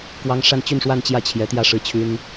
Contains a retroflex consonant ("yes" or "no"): yes